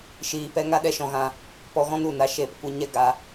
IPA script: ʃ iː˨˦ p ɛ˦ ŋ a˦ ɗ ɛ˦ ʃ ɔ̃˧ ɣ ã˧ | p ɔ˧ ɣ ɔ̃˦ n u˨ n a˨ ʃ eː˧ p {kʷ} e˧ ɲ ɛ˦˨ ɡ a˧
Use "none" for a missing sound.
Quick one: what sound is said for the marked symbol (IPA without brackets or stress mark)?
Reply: kʷ